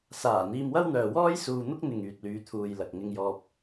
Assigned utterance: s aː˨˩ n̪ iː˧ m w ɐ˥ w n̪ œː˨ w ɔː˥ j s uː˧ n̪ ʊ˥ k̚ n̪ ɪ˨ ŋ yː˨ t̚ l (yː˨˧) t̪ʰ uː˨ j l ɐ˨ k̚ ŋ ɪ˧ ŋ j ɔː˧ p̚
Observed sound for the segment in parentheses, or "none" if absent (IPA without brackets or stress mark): yː˨˧